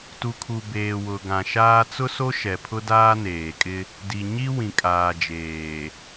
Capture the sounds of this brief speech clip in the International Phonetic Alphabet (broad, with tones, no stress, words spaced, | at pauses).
tu˨kʰu˨ beː˨wʊ˨ɡã˨ʃaː˦ t͡sʊ˦so˦ʃɛ˨pʰʊ˦ daː˦neː˨kʼɪ˦ | di˨ɲi˦ wĩ˨kʼaː˨d͡ʒeː˨